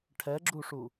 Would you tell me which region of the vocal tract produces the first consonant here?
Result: retroflex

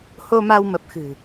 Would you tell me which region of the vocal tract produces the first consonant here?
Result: throat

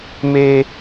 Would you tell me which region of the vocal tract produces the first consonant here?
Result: lips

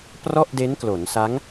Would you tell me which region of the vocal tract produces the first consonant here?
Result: lips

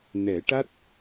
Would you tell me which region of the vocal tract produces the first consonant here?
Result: tongue tip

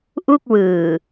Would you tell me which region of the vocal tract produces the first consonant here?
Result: throat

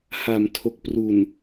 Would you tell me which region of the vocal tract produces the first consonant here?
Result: throat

